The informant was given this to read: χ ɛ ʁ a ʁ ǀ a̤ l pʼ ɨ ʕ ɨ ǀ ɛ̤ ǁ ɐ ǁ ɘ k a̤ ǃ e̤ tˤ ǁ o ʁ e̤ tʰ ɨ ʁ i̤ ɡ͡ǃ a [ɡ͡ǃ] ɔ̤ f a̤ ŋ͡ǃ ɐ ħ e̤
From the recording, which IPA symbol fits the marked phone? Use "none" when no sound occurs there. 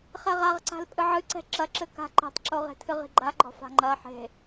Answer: ɡ͡ǃ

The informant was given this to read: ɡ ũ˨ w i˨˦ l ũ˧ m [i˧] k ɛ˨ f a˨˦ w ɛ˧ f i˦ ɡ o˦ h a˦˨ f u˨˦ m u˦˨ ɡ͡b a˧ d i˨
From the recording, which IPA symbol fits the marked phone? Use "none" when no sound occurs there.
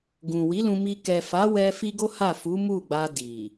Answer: i˧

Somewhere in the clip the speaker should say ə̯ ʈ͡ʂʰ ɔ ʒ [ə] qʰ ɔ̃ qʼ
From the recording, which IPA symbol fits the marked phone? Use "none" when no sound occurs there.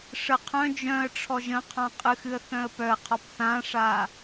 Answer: ə̃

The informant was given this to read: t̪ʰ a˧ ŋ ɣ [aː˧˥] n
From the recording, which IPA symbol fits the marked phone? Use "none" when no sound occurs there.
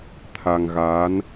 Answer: aː˧˥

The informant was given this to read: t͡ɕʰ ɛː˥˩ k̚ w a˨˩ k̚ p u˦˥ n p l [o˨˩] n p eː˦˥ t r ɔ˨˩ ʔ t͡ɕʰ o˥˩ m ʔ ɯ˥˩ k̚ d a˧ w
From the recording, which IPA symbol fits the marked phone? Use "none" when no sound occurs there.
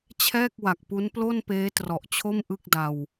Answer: o˥˩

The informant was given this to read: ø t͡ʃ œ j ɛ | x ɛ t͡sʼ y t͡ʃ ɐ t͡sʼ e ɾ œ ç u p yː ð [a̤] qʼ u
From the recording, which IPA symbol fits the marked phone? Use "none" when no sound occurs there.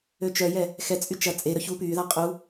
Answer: a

